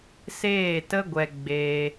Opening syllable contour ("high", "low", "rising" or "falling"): falling